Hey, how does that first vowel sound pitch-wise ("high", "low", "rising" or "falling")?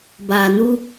low